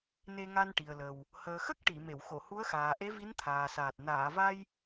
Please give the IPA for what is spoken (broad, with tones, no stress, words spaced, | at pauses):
ne˧ŋa˧nʈi˨˩ə̯lə˨˩w | həː˨˩xə˦˥k̚ ʈi˨˩˨ me˨˩˨w xo˨˩˨hu˧˥ə̯xaː˨˩ ʔe˧˥vi˧˥nt̪ʰaː˨˩saː˨˩t̚ naː˨˩˨va˧j